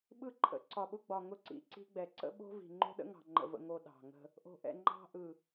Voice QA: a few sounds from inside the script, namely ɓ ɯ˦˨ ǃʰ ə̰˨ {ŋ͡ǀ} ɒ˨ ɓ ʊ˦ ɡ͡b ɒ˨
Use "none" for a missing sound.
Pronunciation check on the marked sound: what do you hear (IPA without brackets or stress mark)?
ǀ